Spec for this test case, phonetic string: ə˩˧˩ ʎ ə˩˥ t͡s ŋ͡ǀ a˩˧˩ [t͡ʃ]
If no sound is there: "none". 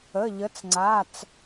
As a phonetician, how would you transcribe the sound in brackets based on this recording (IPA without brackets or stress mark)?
t͡s